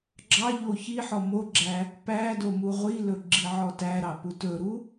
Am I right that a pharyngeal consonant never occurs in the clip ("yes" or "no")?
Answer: no